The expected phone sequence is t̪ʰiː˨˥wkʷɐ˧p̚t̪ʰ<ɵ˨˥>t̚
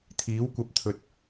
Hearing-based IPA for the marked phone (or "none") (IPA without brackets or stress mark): ɵ˨